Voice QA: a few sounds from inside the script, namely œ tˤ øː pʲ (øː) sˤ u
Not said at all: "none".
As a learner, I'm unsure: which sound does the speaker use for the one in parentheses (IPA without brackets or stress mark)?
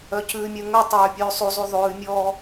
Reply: ʉː